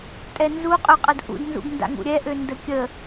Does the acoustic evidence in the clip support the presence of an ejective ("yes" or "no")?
yes